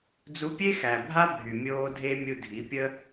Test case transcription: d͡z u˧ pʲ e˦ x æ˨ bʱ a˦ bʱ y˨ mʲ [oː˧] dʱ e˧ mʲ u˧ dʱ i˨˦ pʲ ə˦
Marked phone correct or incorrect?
correct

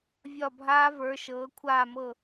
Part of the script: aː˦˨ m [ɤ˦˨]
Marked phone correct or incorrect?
correct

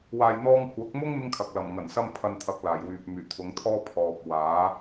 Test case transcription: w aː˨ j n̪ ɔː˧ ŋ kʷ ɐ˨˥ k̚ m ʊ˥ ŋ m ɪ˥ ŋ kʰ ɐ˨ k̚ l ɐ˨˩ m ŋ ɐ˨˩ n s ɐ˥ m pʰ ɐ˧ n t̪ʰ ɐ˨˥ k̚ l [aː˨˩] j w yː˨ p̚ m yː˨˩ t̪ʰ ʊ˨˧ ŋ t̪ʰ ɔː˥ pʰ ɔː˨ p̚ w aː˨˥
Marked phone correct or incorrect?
correct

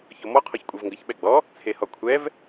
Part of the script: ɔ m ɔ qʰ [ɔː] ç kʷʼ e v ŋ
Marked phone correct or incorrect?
incorrect: ɔ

